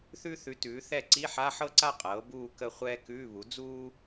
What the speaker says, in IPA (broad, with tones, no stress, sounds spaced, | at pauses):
θ ʉ˥ θ ʉ˩˥ t ʉː˩˥ θ ɛ˥˧ ǀ i˧˥˧ ħ a˧˥˧ ħ ɤ˥ ǀ a˥˧ qʼ ɤː˩˥ b uː˥˧ k ə˥˧ χʷ ɛː˥ k ʉː˧˥˧ β u˩˥ d͡z uː˥